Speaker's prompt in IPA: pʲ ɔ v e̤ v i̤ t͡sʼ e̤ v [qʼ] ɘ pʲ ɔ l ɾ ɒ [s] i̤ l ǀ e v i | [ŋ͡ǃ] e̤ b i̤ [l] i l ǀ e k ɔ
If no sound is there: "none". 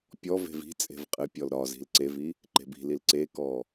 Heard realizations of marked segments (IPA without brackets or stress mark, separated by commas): qʼ, z, ǃ, l